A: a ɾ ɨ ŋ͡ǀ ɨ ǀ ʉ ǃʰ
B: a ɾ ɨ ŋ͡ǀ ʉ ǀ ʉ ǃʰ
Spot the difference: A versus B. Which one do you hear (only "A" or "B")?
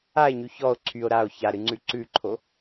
B